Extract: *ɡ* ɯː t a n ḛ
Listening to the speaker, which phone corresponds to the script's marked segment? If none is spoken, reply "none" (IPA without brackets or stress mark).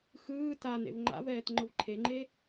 x